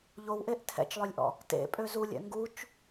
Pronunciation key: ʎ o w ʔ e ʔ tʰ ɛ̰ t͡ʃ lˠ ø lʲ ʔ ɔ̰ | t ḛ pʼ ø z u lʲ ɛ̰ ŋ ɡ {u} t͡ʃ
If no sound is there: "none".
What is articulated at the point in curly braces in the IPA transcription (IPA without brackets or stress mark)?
u